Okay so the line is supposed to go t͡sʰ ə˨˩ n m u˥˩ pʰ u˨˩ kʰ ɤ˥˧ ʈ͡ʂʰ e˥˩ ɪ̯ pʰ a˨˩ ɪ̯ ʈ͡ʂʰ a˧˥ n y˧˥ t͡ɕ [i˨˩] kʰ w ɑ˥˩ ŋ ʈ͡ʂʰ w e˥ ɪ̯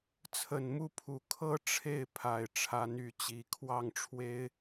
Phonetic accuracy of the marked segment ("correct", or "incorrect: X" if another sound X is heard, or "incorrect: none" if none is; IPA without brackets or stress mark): correct